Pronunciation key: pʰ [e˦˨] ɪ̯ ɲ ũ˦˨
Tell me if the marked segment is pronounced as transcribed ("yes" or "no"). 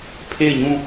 yes